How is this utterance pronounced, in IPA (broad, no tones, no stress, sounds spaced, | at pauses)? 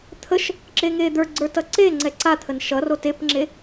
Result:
t̪ʰ ə ʃ | ǁ e ŋ e d̪ ə˞ ɡ͡ǀ ə˞ t ʌ ǀ e ŋ͡ǀ ɛ ǀ a t̪ʰ ə n ʃ ʌ r o t e p ŋ͡ǁ e